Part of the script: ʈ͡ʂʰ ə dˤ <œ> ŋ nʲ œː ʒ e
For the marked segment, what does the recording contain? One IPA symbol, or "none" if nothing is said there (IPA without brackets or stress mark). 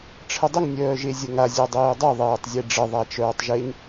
ə